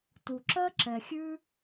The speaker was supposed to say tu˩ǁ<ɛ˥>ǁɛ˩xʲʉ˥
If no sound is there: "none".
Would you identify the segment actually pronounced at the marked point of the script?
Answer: ɜ˥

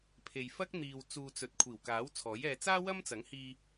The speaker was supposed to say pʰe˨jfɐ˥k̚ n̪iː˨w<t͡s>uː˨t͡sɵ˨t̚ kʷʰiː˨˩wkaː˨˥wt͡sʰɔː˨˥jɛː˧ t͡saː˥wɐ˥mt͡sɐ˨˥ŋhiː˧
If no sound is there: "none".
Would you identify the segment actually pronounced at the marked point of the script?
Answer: t͡s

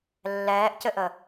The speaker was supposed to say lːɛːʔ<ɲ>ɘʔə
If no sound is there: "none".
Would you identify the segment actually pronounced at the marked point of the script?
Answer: c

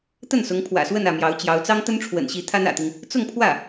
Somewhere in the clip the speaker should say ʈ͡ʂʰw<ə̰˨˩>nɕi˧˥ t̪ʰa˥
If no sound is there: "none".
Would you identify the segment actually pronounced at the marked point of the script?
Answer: ə̰˨˩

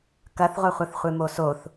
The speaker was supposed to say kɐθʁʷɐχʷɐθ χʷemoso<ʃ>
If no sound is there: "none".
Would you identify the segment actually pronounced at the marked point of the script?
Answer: θ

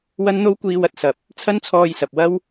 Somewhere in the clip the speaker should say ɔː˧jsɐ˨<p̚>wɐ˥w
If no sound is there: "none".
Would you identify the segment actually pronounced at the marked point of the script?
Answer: p̚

